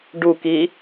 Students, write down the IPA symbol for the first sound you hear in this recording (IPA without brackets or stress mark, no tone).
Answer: ɖ